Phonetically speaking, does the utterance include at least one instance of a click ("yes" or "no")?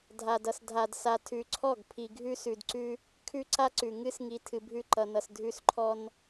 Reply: yes